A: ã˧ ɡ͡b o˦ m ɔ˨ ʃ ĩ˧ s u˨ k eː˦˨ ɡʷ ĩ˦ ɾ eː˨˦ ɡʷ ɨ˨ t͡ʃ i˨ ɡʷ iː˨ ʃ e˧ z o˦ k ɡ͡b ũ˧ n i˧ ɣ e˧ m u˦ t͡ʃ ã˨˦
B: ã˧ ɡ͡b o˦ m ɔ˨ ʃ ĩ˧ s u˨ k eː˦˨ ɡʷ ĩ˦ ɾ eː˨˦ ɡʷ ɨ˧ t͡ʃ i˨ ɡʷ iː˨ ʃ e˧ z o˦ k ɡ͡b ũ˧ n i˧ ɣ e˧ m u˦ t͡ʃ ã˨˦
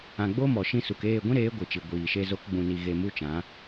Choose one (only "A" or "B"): A